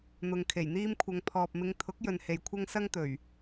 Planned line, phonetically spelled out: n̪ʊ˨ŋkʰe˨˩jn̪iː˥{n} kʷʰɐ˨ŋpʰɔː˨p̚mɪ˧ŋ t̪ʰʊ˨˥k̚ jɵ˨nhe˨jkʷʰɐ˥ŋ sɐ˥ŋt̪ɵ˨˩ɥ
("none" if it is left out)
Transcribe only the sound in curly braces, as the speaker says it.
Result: m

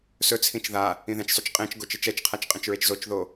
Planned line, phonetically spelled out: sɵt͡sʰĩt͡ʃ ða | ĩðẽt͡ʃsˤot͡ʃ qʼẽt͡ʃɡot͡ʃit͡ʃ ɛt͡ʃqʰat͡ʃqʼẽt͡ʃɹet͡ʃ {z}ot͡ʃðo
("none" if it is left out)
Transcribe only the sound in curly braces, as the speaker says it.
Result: z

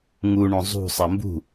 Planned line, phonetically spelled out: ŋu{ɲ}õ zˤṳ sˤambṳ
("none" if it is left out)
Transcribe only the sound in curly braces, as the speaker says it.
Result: ɳ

